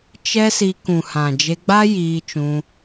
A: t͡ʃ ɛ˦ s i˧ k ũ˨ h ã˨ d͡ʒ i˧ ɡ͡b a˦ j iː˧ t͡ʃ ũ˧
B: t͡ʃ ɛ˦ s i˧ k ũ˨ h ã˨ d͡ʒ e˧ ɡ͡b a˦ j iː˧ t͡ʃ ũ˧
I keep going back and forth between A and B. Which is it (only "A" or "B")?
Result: B